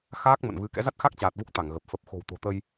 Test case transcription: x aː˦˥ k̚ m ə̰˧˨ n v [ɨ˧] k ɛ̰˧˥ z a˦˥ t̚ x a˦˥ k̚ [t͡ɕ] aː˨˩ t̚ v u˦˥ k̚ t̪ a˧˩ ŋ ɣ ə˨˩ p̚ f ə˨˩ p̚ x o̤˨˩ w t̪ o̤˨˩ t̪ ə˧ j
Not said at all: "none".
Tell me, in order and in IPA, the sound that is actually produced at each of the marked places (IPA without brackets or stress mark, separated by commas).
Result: ɨ˨˦, t͡ɕ